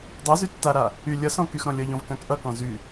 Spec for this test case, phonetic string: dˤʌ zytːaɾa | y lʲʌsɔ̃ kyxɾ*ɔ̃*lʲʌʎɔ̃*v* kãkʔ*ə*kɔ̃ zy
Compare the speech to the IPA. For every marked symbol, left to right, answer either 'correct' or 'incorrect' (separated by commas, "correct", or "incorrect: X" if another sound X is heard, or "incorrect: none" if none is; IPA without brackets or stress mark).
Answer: correct, correct, incorrect: ʌ